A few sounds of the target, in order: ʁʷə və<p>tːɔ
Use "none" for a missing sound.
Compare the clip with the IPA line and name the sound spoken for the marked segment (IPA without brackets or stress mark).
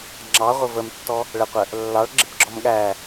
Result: m